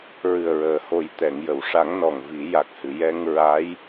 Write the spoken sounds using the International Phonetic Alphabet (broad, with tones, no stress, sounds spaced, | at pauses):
ɹ ɨ˨˩ ə̯ ɹ əː˨˩˨ h o˨˩ j t̪ ɛ˨˩˨ ŋ j ə˨˩˨ w ʂ a˨˩˦ ŋ n ɔ˨˩ ŋ v i˨˩˦ j a˨˩ k̚ h ɨ˨˩˨ j ɛ˧ ŋ ɹ a˧˥ j